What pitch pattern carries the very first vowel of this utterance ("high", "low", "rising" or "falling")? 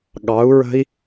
rising